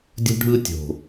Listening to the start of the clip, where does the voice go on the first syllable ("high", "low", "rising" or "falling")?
high